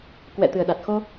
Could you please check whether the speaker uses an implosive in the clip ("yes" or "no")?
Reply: yes